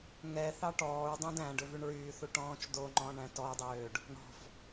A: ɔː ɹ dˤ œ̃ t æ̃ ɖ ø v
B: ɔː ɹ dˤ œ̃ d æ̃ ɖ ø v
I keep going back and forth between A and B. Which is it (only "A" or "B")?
B